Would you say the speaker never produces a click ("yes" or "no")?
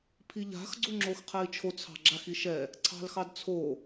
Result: no